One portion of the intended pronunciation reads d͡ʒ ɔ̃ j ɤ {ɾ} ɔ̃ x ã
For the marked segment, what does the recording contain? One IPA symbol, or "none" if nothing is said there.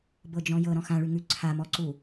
ɾ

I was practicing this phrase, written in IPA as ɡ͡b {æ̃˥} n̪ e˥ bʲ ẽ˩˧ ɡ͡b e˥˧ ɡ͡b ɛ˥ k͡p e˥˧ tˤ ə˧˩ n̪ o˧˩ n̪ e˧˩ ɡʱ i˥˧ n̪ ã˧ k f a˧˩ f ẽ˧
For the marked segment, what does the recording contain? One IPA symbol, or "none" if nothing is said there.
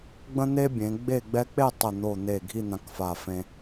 ə̃˥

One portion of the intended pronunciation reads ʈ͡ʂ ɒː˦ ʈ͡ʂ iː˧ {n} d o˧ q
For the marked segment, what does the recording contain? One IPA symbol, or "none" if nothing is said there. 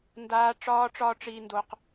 n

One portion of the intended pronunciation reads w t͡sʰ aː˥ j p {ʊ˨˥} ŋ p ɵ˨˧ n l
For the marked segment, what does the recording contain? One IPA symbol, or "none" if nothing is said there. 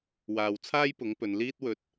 ʊ˨˥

